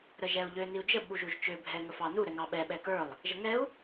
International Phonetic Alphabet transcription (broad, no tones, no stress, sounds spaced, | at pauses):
ɾ ə ʒ ɛ u̯ ʎ ø n i u̯ d͡ʒ ə ɓ u ʒ u ʒ t͡ʃ ø bʱ ɛ ŋ ə f ɑ n u ɾ ɛ ŋ ɑ ɓ ɛ ɓ ɛ k ə˞ lˠ | ʒ ə ŋ ɛ u̯